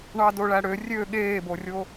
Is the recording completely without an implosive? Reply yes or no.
no